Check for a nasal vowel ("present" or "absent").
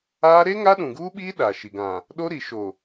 present